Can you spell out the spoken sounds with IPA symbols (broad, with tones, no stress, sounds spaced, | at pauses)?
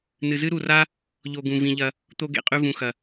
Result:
n ɨ˨ z ɨ˦ ɾ u˨ r a˦ | ʎ o˧ ɡ ũ˨ v ĩ˧ ʎ ɐ˦ | t̪ o˧ ɡ ḛ˨ qʼ ʉ˧ v ũ˨ x ɐ˨